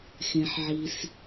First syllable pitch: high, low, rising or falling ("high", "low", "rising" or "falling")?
low